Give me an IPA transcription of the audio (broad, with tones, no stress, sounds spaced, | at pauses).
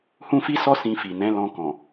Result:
h ũ˦ f i˦ s ɔ˦ s ĩ˧ f i˨ n ɛ̃˨˦ l ɔ̃˧ k ɔ̃˨